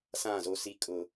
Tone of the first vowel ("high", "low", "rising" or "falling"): falling